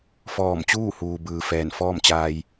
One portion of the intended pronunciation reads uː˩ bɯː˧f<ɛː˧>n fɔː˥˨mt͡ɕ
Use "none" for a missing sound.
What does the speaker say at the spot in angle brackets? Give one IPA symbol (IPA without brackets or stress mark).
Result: ɛː˧˩